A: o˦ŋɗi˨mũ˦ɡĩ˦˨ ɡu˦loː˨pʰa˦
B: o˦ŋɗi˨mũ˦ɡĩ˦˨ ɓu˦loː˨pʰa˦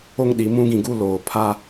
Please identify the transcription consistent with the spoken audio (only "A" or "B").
A